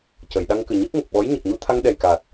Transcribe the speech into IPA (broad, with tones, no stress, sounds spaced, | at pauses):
c ə˨˩˨ j ɗ a˧ ŋ k ɨ˨˩ ɲ ɨ˦˥ k̚ ŋ ə˨˩ k̚ ɓ ɔ˧˥ j ɲ ə˨˩ k̚ ɲ u˧ t̪ʰ a˧ ŋ ɗ ɛ˨˩ j k aː˨˩ t̚